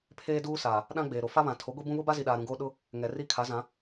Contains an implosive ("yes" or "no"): yes